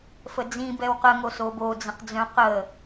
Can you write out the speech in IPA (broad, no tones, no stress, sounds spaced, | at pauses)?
f ə d͡z ĩ b ɛ w q ə ŋ o s o b o d͡z ə̃ q d͡z œ̃ q ə